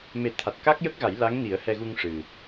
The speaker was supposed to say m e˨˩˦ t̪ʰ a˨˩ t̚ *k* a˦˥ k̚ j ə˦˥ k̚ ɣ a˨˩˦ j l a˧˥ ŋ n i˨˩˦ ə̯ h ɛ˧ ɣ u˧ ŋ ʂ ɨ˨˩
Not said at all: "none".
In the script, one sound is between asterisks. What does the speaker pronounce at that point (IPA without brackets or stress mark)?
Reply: k